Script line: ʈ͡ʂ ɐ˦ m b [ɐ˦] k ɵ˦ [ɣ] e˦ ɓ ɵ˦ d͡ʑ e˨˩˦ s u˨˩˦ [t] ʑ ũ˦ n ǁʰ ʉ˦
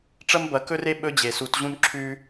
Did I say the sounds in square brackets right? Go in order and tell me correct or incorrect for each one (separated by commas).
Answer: incorrect, incorrect, correct